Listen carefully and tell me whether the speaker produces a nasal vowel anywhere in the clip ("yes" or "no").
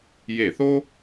no